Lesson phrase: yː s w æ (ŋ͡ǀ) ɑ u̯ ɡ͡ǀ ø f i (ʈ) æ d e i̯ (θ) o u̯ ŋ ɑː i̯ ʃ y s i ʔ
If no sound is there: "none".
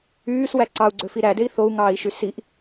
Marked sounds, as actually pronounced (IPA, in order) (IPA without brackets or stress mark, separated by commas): ǀ, ɾ, θ